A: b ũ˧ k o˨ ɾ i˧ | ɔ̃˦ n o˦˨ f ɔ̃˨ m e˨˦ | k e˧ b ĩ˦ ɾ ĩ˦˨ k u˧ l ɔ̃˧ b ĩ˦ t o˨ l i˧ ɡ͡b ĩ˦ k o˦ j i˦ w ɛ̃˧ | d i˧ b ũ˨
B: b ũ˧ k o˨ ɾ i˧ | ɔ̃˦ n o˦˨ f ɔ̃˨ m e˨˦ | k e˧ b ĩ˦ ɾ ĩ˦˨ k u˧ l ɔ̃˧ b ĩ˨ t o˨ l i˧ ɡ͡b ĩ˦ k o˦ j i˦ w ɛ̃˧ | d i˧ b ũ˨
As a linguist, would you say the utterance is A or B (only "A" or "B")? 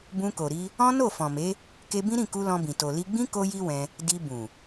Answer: B